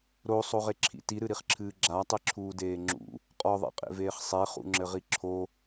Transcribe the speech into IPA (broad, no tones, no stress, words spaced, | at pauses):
ɾosˤoʁeǁʰḭ tiɾɨɾiχǁʰɨː ɡ͡ǁatˤiǁʰuːdeː ŋ͡ǁṵ | qʼɔðˤḛqʼḛveːχ sˤeχṵŋ͡ǁɘʁi ǁʰo